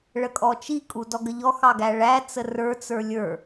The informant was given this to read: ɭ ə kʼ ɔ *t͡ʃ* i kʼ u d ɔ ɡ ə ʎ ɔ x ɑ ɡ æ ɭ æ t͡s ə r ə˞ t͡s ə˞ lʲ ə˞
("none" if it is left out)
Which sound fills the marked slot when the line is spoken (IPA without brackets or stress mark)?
t͡ʃ